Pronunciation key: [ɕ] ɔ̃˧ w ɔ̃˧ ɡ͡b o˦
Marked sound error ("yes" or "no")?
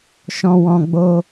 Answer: yes